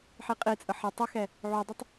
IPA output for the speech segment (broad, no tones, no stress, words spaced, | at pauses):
ħiqʼit͡sʼə ħə tˤəxɛ | ʕudˤɛtˤ